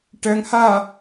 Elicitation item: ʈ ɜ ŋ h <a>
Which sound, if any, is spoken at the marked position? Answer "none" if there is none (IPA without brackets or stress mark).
a